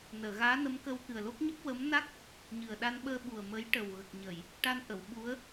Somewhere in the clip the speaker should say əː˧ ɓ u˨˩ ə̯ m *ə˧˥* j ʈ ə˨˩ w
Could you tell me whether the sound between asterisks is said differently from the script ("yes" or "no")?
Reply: no